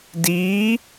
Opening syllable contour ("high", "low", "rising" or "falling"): rising